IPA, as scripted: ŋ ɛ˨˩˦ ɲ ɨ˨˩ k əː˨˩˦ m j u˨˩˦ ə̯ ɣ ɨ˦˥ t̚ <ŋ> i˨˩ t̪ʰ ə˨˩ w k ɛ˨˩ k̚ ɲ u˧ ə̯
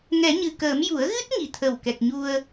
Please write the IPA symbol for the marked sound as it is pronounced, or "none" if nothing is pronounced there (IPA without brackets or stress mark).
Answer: ŋ